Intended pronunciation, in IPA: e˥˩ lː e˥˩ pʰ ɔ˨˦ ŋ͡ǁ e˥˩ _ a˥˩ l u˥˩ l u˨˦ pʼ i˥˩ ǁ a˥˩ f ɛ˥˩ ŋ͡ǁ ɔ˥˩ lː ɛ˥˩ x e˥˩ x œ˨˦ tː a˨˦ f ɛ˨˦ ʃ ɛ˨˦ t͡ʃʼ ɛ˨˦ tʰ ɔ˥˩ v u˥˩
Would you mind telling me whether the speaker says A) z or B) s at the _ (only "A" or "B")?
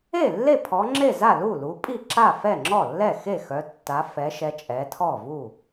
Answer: A